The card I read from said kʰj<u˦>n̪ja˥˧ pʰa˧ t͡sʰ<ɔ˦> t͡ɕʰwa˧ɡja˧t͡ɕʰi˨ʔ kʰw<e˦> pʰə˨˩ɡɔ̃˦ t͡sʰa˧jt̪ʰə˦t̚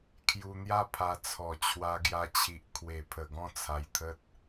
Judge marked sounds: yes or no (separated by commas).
no, no, no